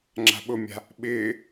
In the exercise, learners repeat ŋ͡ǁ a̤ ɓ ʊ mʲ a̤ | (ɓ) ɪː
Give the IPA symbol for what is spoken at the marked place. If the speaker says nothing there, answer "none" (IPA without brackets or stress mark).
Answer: ɓ